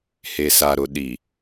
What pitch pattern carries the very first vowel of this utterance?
low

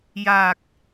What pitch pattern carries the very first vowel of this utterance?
low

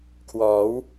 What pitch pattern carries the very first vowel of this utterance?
rising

